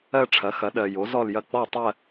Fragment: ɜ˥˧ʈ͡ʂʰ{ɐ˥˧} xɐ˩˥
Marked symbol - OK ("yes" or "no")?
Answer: no